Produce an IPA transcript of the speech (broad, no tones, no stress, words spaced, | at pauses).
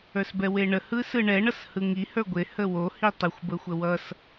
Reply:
ə˞sbɛweɳə hɯsɯɳɛ ɳʌshɯŋi hə˞ɡʷe həwo hitˤɯxʷ bəxʷəwʌs